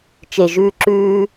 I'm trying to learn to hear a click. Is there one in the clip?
yes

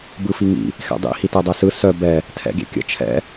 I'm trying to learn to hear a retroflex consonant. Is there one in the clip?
no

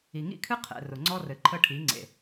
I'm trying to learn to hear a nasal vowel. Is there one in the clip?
no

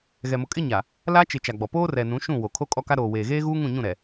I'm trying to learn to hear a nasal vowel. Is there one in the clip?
yes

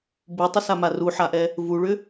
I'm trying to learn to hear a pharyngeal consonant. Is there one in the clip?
yes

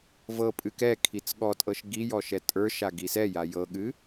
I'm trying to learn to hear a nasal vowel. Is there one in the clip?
no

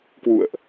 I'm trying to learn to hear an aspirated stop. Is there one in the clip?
no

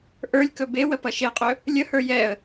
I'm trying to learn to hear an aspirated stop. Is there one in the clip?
no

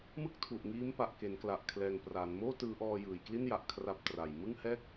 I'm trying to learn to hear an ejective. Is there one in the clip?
no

